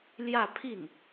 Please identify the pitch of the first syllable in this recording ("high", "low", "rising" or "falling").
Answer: falling